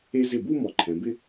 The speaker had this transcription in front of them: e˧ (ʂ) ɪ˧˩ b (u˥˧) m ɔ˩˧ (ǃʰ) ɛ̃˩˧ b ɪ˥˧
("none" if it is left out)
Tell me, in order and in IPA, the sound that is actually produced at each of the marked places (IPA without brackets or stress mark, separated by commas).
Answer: z, u˥˧, ǃʰ